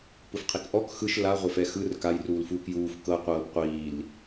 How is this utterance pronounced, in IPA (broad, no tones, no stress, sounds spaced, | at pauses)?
p ɯ f qʰ i k ʔ ɔ k x ɯ ʃ l a ʁʷ e f ɛ x ɯ r k a j r uː l f uː k j uː f k ɤ qʷ ɤː p qʷ iː l